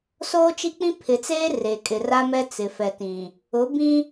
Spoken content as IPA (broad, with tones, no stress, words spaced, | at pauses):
soː˦t͡ʃi˦k͡pĩ˦ pʰɪ˨t͡seː˦ re˨kʼɪ˨ra˦mɛ˦ t͡sɪ˨fɛ˨tĩ˨ | ʊ˨˦ bĩ˦